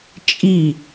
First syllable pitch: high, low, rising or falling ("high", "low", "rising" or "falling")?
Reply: falling